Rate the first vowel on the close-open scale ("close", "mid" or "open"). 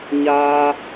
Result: open